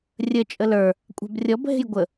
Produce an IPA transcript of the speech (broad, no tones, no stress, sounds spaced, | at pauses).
rʲ ə t͡ʃʼ ə l ə˞ | kʷʼ a̤ b rʲ ɔ b ɦ e̤ j ɡʷ ə